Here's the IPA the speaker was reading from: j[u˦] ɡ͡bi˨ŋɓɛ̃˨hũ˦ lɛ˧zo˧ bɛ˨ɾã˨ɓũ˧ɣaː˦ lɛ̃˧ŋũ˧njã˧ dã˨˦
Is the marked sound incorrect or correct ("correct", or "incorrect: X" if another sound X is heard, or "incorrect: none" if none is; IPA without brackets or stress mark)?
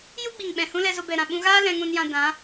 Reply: correct